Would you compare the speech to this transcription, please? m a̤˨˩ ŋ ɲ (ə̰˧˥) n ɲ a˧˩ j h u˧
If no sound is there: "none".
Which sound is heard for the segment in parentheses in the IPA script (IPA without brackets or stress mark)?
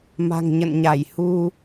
ə̰˧˨